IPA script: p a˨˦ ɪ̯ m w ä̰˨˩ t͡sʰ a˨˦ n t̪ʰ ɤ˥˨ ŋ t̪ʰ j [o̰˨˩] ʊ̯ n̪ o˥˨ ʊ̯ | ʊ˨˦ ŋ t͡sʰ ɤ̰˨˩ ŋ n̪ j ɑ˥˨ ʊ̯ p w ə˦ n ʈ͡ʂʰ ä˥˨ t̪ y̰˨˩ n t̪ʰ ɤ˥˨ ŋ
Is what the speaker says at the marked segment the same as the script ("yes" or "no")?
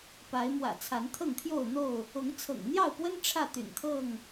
no